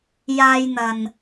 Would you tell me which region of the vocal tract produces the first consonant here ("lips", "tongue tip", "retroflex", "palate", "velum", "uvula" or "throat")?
palate